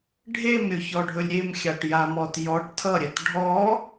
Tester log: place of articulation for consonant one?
retroflex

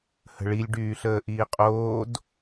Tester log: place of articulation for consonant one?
glottal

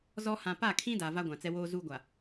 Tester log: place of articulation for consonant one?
alveolar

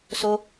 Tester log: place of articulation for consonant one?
alveolar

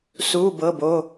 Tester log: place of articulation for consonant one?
alveolar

